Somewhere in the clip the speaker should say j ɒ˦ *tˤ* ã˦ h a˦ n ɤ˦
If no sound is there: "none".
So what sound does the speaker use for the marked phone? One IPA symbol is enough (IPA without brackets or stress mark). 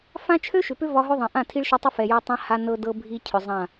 tˤ